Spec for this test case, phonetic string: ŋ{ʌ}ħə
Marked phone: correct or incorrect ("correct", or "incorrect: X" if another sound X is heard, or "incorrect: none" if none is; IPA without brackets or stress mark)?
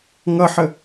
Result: correct